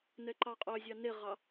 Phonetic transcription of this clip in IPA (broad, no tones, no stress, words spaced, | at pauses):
nɛǃɑqʼœzʲɑ neʁɑ